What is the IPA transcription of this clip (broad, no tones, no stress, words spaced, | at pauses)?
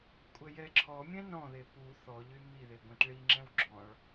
kʷʼɛjɛǁʰɔmʲɛ̃ nɔ̃ðe pu θɔʎy miðe ɡʷẽtɭiŋ͡ǁɛ̃w ɡ͡ǁɔ̃ɭ